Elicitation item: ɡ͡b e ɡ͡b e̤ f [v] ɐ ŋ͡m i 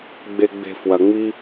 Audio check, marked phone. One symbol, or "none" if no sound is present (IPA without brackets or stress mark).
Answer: w